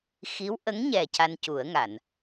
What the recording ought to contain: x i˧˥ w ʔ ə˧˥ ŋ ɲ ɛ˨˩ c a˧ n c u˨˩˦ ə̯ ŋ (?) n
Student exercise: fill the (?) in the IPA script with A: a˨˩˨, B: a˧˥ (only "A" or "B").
A